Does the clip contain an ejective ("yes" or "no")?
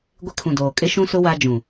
yes